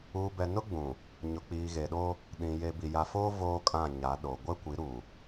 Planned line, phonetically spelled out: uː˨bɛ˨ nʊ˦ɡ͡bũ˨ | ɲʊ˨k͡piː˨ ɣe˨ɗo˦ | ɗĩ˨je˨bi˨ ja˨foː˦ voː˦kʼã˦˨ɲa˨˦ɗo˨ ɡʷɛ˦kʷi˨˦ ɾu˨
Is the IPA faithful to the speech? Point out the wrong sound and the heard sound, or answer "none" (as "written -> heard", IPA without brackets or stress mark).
none